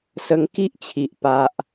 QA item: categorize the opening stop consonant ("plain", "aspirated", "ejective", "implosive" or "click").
plain